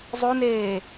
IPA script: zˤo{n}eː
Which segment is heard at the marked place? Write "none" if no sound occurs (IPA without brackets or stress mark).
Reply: n